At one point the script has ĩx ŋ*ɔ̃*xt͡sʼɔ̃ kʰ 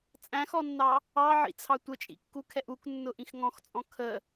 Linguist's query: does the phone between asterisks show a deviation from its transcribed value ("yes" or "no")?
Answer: no